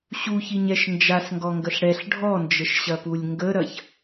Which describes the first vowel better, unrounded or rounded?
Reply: rounded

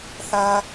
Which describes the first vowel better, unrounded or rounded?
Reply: unrounded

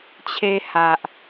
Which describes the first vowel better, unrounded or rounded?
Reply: unrounded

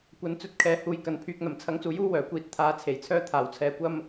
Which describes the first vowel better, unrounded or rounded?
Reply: unrounded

